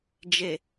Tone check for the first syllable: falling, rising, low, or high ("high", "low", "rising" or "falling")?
low